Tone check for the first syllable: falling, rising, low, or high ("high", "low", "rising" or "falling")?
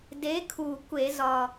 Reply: rising